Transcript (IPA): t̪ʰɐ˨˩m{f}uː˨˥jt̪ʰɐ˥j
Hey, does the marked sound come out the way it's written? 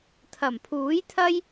no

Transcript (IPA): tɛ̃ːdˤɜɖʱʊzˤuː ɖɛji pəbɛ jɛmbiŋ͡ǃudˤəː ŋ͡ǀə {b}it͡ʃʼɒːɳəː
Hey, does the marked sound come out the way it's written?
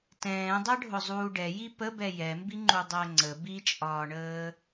yes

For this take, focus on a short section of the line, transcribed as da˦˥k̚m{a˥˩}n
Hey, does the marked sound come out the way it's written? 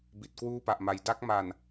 no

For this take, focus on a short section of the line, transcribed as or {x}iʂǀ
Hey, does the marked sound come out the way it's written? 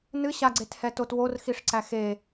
yes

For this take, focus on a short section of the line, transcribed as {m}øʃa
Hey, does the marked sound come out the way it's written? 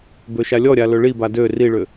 no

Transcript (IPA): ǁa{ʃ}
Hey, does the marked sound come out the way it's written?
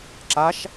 yes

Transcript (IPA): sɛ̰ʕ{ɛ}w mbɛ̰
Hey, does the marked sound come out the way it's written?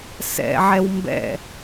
yes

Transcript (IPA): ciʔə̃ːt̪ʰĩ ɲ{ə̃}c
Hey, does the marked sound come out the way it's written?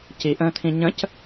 yes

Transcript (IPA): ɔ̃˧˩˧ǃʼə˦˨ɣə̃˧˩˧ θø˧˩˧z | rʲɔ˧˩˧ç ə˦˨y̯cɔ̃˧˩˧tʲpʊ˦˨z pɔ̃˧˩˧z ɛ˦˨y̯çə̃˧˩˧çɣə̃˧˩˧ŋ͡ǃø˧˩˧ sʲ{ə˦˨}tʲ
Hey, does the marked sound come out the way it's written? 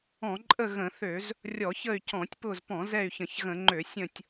no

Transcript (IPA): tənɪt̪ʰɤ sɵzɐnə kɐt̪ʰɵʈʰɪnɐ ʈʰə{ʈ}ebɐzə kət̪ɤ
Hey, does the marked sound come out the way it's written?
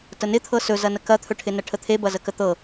no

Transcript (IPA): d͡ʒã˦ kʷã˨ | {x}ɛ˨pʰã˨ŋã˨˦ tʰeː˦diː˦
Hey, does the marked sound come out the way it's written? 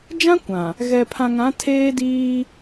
no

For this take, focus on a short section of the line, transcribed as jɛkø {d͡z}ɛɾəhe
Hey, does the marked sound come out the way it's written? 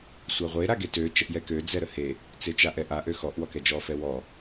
yes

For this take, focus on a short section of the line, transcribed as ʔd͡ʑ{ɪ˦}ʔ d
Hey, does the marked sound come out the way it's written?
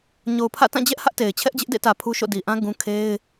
yes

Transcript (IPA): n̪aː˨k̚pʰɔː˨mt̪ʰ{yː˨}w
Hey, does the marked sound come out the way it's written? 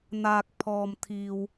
no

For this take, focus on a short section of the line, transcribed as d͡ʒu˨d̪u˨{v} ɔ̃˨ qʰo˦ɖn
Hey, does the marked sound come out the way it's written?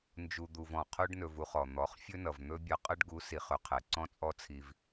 yes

